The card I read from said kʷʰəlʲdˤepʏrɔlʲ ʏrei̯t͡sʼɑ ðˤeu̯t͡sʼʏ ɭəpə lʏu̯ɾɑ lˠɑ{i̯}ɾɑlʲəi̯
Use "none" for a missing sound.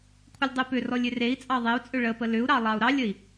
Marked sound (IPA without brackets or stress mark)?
u̯